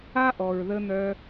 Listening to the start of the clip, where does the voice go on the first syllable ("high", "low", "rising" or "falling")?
high